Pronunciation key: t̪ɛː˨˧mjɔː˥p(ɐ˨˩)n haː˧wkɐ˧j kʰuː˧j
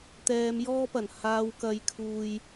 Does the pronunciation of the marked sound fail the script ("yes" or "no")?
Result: no